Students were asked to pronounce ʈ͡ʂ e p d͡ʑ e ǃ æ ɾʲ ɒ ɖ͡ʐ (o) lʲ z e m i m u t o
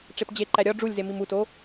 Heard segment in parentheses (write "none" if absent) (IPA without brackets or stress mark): u